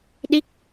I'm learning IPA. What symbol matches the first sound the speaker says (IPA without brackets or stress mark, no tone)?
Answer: ɗ